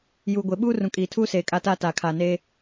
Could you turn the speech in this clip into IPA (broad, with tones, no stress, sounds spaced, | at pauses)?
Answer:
j uː˨ ɡʷ e˨ ɓ uː˦ r ũ˨ kʼ iː˨ tʰ uː˦ s eː˨ kʼ aː˦ t aː˦ t aː˨ kʰ aː˨ n eː˦